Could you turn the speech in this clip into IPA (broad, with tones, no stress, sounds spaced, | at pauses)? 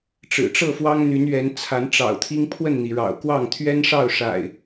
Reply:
ʈ͡ʂ ɻ̩˨˩ ʈ͡ʂ ɤ˥˨ f w ɑ˦ ŋ n̪ y˨˦ n ɥ ɛ˨˦ n t͡sʰ a˨˦ n ʈ͡ʂ ɑ̰˨˩ ʊ̯ t̪ʰ i˦ ŋ pʰ w ə˥˨ n n̪ i˩ ɻ ɑ̰˨˩ ʊ̯ k w ɑ˥˨ ŋ t̪ʰ ɥ ɛ˦ n ʂ ɑ˥˨ ʊ̯ ʂ a̰˨˩ ɪ̯